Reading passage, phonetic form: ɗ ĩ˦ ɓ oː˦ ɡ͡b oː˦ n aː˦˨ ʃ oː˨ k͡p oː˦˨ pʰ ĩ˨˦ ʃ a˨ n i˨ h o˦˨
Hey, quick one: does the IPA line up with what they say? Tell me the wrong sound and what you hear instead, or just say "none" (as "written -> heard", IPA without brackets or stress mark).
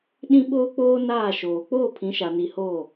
ɡ͡b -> k͡p